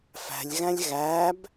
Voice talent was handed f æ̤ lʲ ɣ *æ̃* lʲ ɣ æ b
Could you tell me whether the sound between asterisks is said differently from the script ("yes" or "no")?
no